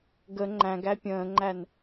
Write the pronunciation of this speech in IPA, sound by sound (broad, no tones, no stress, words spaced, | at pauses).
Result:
ɡə ŋ͡ǃæ̃ɡ æpʲə̃ːŋ͡ǃæn